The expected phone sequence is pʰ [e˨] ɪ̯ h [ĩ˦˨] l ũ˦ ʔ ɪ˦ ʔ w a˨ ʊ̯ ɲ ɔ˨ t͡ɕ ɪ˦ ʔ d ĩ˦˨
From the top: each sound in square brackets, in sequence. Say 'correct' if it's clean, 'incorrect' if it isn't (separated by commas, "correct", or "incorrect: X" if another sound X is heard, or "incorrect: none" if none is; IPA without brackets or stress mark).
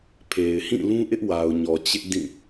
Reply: correct, correct